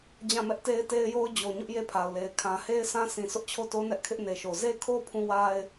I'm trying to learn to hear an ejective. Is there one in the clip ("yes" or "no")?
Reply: no